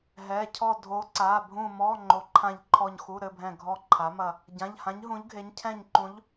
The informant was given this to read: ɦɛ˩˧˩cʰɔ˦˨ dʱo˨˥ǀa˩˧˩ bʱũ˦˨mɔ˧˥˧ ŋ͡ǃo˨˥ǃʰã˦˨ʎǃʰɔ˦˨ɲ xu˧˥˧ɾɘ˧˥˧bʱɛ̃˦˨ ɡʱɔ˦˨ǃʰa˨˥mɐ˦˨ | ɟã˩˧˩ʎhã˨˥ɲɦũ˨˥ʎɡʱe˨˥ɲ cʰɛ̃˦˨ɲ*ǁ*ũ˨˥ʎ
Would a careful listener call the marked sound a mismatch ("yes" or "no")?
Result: yes